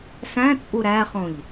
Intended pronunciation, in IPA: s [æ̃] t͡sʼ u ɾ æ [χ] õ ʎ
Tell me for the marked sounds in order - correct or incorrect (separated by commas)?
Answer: correct, correct